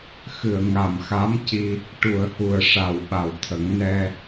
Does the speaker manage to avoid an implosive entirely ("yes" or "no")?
no